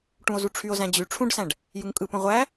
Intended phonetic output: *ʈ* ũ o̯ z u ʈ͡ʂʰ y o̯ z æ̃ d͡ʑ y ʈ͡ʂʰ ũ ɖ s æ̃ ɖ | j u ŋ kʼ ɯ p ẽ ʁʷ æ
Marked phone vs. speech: correct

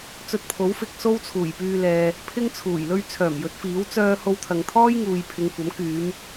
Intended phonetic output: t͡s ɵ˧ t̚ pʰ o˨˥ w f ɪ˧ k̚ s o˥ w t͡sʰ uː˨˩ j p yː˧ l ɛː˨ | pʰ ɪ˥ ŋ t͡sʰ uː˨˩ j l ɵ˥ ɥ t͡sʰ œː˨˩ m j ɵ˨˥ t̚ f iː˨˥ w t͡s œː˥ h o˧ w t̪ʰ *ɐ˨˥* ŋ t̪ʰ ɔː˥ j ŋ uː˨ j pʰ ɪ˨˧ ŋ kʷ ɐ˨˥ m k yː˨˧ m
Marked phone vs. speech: incorrect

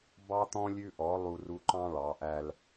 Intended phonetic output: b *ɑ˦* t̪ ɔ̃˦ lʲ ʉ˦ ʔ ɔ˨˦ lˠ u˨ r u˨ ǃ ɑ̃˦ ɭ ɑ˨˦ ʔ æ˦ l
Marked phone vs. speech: correct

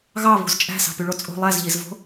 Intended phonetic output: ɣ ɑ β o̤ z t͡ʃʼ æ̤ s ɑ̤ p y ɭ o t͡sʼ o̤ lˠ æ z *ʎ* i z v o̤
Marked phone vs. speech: correct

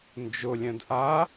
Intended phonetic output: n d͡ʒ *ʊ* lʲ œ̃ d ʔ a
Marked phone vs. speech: correct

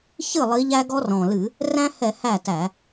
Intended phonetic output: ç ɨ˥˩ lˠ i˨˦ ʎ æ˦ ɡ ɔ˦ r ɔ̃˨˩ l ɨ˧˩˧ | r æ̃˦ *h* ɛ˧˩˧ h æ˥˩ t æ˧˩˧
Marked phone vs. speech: correct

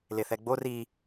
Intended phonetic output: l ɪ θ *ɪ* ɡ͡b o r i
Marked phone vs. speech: incorrect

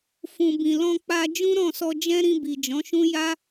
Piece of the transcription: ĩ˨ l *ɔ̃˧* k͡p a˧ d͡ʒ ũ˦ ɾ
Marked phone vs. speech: correct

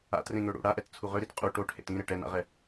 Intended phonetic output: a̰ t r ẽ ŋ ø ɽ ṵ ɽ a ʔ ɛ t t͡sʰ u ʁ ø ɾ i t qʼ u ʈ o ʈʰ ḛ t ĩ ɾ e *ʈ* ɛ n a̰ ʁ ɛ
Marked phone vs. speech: correct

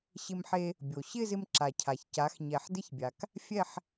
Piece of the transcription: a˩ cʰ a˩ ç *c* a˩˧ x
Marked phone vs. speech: correct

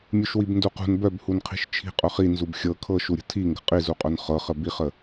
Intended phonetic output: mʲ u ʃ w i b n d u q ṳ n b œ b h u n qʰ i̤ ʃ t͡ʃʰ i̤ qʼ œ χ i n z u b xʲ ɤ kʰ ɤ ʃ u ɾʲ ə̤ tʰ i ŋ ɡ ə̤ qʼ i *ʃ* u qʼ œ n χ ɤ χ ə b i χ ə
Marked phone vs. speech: incorrect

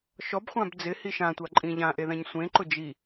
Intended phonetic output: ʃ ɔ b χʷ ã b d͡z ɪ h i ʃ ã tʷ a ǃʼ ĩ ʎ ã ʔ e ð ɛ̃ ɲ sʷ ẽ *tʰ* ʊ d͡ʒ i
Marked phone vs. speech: incorrect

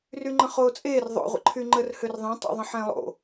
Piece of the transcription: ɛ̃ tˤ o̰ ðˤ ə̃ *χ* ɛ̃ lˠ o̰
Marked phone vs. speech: incorrect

